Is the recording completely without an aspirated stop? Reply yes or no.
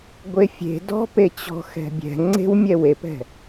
yes